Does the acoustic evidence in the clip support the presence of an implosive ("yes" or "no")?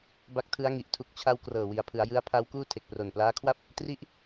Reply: no